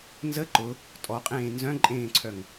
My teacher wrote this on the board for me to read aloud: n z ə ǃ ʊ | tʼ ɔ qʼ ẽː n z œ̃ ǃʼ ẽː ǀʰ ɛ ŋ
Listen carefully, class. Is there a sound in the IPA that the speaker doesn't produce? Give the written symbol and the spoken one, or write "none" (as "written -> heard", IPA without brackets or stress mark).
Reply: ɛ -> œ